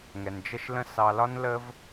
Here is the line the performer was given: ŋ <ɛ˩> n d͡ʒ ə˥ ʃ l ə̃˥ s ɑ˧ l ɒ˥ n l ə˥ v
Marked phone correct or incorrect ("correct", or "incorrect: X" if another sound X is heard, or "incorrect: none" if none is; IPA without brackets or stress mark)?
correct